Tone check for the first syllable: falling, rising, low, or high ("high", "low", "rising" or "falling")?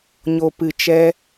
low